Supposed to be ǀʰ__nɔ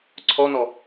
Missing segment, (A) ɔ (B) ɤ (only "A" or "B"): A